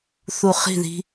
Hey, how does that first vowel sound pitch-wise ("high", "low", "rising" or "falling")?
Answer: low